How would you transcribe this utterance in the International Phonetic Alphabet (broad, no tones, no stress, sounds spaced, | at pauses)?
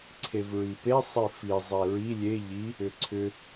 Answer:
ǀʰ e v ɹ i p e sˤ i f i zˤ e ɹ i lʲ e ʎ i | ʏ ǀʰ ʏ